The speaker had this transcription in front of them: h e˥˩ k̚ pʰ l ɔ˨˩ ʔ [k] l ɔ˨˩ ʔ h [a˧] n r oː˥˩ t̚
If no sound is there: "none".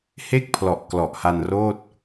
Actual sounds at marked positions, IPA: k, a˧

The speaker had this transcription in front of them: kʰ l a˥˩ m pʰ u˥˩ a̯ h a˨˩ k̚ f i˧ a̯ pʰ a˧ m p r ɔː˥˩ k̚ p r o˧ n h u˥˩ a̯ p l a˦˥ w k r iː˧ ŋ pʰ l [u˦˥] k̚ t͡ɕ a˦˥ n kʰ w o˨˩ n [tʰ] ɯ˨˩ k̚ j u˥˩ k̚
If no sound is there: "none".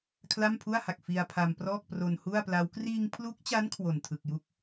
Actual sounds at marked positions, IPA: u˦˥, tʰ

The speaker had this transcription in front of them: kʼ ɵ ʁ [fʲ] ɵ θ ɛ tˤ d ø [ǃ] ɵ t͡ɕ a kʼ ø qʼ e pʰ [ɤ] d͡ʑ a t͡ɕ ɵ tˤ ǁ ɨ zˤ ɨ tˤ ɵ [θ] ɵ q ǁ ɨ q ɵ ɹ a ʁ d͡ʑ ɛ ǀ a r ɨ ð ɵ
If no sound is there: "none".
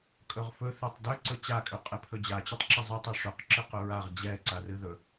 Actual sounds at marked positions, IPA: f, ǀ, ɵ, ʂ

